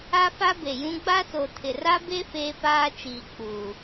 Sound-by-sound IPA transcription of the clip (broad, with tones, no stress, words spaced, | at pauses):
a˦fa˦be˨jũ˦ ɡ͡ba˦ so˨tʰɪ˨ra˦be˦ feː˦paː˦t͡ʃiː˨ k͡puː˨